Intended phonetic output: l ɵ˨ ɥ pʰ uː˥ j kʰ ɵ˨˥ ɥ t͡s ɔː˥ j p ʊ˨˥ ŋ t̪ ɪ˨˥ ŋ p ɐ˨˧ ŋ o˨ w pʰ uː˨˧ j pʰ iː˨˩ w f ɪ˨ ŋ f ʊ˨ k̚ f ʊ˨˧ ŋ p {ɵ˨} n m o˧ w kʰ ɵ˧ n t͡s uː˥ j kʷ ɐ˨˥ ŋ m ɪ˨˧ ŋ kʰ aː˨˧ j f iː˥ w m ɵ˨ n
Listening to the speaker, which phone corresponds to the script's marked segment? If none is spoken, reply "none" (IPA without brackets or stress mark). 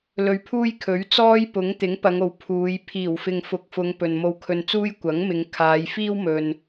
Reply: ɵ˨